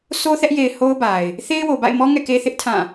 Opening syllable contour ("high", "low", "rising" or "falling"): high